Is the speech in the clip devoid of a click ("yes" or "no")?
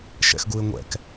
yes